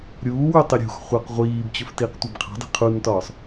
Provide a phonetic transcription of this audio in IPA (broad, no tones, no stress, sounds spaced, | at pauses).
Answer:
ɾʲ uː w y tˤ i ɾʲ ṳ x χʷ ɑ q ʁʷ iː b t͡ɕ ɵ f t iː q tʷ ɑ b qʰ ɑ̤ dˤ i̤ qʰ u n t ɒː sˤ